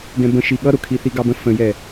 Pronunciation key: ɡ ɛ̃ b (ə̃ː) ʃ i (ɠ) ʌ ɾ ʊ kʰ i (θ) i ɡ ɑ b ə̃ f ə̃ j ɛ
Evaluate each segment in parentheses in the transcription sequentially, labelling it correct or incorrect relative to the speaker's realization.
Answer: incorrect, correct, correct

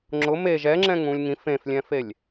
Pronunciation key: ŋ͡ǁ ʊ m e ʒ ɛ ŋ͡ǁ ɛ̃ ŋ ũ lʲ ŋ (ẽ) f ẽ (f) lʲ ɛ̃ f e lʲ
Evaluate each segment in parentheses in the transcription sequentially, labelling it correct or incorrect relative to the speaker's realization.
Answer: incorrect, correct

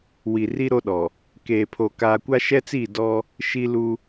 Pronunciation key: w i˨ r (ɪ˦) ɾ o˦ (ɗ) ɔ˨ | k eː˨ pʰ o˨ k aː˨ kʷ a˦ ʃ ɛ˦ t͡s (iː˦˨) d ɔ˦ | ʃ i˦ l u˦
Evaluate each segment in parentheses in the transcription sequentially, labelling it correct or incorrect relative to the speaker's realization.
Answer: incorrect, correct, correct

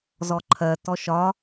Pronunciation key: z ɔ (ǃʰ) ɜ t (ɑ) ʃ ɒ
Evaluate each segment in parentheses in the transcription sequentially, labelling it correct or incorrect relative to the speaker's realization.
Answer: correct, incorrect

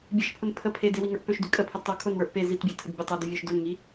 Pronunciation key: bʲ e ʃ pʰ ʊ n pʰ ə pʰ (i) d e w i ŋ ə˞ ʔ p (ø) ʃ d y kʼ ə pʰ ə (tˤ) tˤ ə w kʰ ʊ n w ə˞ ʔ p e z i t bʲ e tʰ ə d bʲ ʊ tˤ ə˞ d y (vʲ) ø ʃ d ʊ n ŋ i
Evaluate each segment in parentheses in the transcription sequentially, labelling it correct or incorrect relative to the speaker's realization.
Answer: incorrect, correct, incorrect, correct

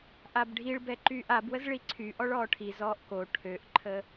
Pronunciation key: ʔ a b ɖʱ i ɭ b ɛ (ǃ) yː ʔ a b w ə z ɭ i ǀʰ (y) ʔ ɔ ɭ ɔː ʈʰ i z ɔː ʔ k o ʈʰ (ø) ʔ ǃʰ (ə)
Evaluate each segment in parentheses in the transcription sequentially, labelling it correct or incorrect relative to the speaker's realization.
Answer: correct, correct, correct, correct

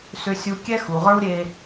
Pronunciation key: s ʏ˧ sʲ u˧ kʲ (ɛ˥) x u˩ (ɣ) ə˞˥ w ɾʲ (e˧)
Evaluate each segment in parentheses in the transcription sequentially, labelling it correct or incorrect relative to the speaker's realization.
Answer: correct, incorrect, correct

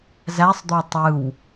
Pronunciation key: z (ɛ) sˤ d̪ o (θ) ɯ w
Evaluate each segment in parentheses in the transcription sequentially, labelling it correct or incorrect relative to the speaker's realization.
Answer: incorrect, incorrect

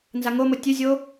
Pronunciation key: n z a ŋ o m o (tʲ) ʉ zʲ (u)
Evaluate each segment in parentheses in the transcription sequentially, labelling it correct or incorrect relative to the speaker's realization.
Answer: correct, incorrect

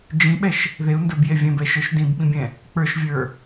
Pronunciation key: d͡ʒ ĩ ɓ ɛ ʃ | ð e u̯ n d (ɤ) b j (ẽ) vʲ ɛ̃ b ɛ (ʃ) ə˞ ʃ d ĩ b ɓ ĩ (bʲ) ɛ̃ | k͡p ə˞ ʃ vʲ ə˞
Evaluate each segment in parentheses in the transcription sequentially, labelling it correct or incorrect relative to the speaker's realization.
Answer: incorrect, incorrect, correct, correct

